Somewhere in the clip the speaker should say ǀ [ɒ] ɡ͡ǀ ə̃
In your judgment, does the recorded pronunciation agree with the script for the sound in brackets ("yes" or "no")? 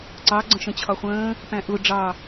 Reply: no